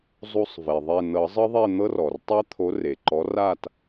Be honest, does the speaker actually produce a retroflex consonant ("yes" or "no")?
no